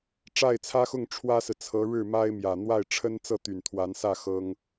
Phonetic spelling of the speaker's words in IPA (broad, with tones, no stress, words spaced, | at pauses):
ʈ͡ʂa˥˩ɪ̯t͡sʰä˥xʊ˥˩ŋ ʈ͡ʂʰwä˥sɹ̩˨t͡sʰɤ˧˥ ɻɻ̩˥˩ ma˥ɪ̯ mjä˨˩ n̪wa˥˩ɪ̯ʈ͡ʂʰə˥n t͡sɤ˥˩t̪y˨˩n t̪ʰwa˧˥nsä˥˩ xɤ˥ŋ